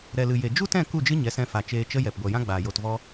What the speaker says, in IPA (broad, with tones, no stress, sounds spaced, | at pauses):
ɾ ɛ˨ l ɨ˨ j e˨ d͡ʒ u˦ t ɛ̃˦˨ k u˦˨ d͡ʒ ɨ˦ ɲ ɛ˨˦ s ɛ̃˧ f a˨ t͡ʃ eː˧ t͡ʃ ə˦ j ɛ˨ p ɡʷ ɛ˨ j ã˦ ɡ͡b aː˨ j o˨ t v ɔ˧